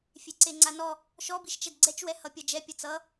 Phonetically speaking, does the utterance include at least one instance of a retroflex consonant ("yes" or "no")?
no